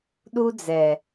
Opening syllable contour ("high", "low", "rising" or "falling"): high